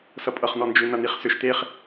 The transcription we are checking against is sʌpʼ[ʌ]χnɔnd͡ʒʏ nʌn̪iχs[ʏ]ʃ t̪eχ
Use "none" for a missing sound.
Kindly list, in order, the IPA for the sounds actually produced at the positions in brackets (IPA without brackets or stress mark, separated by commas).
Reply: ʌ, ʏ